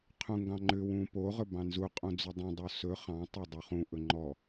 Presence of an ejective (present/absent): present